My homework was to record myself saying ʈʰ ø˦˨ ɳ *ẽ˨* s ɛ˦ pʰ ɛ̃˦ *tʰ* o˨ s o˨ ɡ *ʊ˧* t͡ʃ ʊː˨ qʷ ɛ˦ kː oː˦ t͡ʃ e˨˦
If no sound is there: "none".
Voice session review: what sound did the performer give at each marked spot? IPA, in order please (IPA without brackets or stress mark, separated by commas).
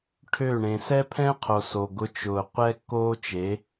ẽ˨, qʰ, ʊ˧